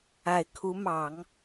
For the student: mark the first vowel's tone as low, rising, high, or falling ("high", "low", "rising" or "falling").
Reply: low